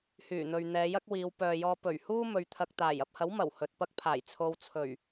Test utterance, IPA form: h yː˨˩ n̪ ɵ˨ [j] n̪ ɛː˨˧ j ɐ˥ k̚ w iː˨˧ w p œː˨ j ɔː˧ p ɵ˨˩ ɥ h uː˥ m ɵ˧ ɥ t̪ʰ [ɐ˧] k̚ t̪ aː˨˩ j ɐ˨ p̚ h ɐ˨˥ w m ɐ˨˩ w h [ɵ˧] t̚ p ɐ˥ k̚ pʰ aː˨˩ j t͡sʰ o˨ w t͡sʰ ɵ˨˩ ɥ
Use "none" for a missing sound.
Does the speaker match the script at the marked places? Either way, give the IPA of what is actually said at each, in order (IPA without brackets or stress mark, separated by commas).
ɥ, ɐ˧, ɵ˨